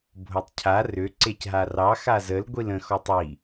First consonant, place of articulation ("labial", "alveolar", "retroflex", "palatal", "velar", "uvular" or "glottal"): labial